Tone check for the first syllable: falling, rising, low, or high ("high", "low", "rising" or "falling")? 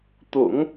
low